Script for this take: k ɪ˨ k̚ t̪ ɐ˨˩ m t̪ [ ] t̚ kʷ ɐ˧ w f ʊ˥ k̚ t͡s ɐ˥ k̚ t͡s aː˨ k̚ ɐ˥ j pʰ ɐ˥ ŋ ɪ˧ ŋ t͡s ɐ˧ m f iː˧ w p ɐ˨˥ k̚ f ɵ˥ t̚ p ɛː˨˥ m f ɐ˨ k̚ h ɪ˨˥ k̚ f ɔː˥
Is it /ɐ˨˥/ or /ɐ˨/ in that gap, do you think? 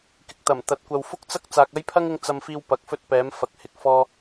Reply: ɐ˨˥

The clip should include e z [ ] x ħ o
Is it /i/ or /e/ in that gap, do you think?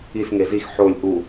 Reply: i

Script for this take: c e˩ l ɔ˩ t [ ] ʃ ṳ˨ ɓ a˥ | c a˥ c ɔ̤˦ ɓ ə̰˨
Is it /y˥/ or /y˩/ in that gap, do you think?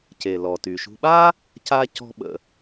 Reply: y˩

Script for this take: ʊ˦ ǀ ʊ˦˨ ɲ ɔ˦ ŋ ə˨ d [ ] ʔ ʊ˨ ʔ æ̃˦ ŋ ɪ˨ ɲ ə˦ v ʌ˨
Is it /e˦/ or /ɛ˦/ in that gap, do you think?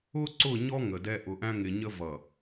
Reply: ɛ˦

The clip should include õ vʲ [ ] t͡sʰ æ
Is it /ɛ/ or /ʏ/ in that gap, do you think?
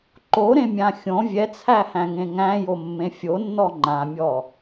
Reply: ɛ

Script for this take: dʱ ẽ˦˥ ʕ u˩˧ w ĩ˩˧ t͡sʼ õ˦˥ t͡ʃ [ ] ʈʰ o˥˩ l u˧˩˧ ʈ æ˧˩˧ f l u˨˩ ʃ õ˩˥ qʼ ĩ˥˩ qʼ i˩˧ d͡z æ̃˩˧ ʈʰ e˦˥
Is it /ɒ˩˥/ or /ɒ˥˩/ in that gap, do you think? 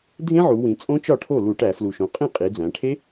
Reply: ɒ˥˩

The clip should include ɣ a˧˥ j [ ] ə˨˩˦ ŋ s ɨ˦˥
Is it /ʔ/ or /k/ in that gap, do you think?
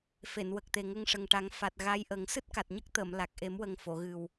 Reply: ʔ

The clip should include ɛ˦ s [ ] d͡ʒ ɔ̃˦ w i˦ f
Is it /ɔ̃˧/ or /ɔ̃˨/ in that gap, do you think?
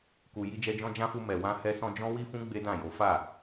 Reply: ɔ̃˧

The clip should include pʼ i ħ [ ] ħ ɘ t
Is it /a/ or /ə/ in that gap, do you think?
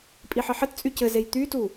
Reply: ə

